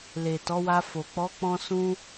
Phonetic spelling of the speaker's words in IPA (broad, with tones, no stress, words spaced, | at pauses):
le˨tɔ˨˦wa˧fo˨ k͡pɔ˨˦k͡pɔ̃˧sũ˧